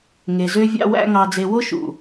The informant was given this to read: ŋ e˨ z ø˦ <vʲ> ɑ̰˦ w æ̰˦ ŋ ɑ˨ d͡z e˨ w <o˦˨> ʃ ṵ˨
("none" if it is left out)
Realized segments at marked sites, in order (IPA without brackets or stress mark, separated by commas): vʲ, o˦